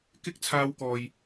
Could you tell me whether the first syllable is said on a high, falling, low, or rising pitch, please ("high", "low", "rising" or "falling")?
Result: high